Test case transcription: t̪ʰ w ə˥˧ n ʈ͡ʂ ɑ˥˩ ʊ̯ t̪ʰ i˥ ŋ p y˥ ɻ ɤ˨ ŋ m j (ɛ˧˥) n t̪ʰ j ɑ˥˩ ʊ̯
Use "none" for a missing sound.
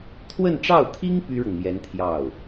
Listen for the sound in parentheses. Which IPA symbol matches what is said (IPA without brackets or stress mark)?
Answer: ɛ˧˥